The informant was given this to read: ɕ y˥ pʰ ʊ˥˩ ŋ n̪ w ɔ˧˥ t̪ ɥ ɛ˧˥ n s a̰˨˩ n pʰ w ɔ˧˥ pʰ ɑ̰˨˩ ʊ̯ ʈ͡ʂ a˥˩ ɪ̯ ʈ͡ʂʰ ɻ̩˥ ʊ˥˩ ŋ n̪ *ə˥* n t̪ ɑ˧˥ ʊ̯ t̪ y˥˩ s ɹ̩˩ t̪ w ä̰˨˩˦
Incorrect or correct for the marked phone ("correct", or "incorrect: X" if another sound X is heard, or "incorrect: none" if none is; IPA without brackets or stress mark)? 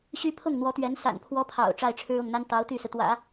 incorrect: a˥